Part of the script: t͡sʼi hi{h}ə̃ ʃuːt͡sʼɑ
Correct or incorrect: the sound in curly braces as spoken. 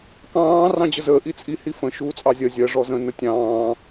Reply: incorrect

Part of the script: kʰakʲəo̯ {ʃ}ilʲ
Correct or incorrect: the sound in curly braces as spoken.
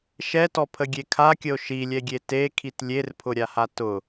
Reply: correct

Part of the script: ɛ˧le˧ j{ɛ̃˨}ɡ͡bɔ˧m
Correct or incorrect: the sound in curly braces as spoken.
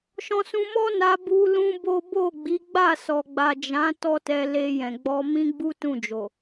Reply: correct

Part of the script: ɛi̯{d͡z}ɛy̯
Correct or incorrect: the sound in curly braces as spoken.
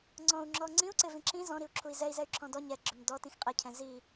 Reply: incorrect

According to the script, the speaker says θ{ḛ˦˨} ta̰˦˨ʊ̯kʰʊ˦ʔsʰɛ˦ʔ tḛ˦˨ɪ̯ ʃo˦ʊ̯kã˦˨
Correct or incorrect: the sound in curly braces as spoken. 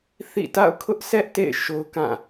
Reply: incorrect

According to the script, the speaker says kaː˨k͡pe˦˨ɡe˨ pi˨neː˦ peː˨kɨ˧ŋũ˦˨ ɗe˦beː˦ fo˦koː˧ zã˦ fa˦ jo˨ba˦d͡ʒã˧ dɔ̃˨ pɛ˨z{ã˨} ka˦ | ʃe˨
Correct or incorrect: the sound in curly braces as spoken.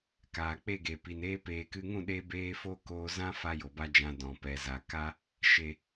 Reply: incorrect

